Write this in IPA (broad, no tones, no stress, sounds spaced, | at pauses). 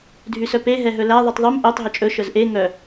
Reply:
dʱ y s œ p e ɦ ɛ ɦ ɵ l æ ðˤ u tˤ ðˤ y m ʔ œ tˤ ɦ ɵ t͡ʃʼ ɵ ʃ œ z ʔ e ŋ œ